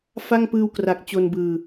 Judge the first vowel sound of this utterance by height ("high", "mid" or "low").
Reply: low